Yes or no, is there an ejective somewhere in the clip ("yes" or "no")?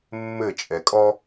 yes